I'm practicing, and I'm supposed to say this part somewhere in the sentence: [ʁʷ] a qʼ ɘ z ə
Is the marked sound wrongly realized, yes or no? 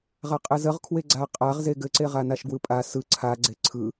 yes